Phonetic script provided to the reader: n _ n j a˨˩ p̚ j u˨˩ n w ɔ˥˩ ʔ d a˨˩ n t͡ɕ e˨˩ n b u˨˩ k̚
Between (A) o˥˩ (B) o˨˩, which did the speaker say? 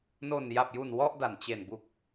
B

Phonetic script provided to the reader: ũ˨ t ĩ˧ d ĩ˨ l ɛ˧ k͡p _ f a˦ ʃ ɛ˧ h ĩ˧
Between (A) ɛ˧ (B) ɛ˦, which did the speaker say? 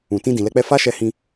B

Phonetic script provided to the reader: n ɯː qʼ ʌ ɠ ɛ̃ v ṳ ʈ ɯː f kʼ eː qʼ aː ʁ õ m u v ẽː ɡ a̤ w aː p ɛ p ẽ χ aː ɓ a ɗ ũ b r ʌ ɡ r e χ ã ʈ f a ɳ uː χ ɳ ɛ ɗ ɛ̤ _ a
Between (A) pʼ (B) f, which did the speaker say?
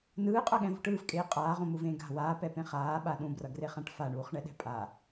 A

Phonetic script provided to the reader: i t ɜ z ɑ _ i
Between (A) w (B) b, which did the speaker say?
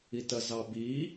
B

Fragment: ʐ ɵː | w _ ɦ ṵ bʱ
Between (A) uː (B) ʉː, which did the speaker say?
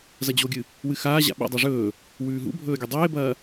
B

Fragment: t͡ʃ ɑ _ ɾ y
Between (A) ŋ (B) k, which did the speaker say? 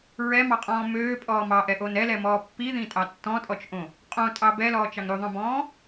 A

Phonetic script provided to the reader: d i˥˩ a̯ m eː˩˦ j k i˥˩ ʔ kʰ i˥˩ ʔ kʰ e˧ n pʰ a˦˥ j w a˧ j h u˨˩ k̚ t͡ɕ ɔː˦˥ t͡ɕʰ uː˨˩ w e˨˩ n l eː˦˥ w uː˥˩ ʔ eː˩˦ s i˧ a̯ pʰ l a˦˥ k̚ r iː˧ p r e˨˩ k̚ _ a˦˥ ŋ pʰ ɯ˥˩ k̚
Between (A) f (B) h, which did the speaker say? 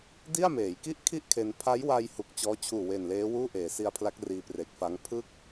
A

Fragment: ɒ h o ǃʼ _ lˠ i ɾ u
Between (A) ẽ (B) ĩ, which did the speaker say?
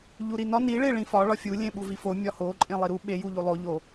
A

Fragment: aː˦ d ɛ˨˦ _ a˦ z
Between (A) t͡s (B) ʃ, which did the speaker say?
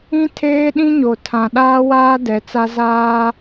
A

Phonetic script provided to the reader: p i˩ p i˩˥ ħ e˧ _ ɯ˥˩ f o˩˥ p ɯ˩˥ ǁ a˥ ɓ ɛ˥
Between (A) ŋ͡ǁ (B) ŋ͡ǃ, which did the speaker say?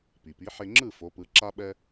A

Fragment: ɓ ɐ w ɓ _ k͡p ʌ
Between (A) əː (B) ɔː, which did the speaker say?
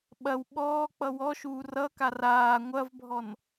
B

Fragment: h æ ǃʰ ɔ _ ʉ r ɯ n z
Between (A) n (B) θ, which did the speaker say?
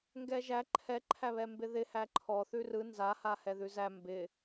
B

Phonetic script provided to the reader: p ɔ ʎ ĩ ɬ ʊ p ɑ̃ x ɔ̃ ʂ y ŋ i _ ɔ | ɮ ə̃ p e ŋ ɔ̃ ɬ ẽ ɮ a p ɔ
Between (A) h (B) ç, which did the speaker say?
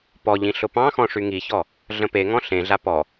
B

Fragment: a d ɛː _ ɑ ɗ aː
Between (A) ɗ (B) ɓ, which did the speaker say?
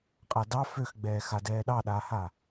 A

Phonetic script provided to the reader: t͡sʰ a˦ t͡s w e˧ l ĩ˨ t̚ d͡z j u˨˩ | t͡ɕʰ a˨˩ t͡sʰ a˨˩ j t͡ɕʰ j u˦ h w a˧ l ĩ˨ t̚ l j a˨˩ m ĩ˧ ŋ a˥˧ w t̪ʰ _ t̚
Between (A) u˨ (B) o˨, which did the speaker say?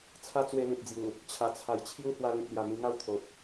B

